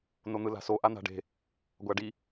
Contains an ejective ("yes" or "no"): no